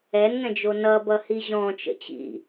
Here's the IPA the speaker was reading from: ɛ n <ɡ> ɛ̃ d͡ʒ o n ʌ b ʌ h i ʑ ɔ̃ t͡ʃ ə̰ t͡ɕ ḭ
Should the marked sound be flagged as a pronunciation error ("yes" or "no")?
yes